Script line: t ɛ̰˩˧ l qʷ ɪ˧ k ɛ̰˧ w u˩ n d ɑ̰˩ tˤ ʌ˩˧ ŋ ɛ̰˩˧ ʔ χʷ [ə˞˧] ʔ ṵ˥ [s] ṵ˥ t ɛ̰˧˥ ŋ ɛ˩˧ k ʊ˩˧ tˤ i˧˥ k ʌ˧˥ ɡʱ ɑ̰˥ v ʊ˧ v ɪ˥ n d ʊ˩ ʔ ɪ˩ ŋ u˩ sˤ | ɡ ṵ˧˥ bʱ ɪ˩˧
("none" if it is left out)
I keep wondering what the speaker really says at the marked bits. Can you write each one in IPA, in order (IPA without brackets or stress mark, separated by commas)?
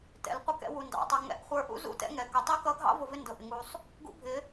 ə˞˧, z